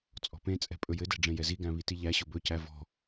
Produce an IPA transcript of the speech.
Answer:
t͡sʼɔ̤pẽt͡sʼɛ̤ pʼɵjɘdɛ̤ ɖ͡ʐẽjɛziɡæ̃ βitiʎæɕʊ bɵcæ vɔ̤

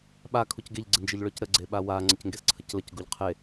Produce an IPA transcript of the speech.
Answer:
ɓa kʰucɡeʎ ɡ͡ǀɪnd͡ʒɪʎɭœcɾə ɡ͡ǀeɓawa ŋ͡ǀəcŋɡesǀʰəcləc ɡuʎqʰe

